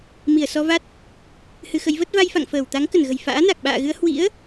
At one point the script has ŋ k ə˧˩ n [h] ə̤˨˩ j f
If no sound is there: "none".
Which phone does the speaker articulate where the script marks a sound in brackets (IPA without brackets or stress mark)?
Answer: ɣ